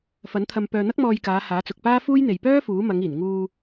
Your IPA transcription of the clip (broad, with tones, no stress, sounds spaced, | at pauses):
f ɐ˨˥ n t̪ʰ ɐ˧ m p œː˧ n̪ ɐ˥ k̚ m ɔː˧ j k aː˨˧ h aː˨˥ t͡s ʊ˨ k̚ p aː˥ f uː˥ j n̪ e˨ j p œː˥ f uː˨˥ m ɐ˨˧ ŋ iː˨˩ n ŋ uː˧